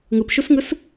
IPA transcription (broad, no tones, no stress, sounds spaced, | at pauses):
ŋ ɯ p ʃ u s ŋ ɯ s